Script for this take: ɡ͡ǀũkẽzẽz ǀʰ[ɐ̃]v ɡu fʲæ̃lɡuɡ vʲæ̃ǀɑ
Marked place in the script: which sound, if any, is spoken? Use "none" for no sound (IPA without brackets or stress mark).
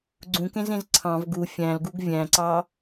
ɑ̃